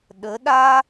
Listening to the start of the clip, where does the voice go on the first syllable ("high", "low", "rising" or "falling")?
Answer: rising